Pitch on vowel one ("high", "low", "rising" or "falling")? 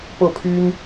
falling